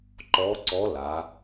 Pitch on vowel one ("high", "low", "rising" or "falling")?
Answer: rising